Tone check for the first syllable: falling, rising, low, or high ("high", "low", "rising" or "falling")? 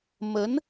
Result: rising